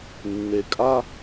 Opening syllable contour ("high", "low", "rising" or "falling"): low